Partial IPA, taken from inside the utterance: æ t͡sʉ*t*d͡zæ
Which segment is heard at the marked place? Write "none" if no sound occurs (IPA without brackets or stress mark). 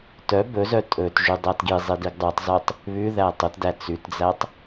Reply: t